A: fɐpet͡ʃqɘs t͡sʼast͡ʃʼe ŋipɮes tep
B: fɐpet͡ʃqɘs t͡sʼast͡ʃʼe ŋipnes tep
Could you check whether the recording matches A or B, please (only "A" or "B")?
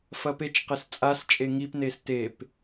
B